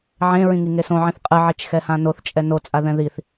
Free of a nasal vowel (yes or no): no